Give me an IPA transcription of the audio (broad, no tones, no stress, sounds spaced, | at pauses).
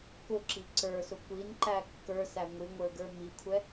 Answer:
k ʊ ǁ i ǀ ə˞ s ʊ kʷ i n ǃ æ kː ə˞ s æ ŋʷ i ŋʷ ə˞ ɡ ə˞ m i kʷʰ ɛ